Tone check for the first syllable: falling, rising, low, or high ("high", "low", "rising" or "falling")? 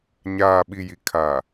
low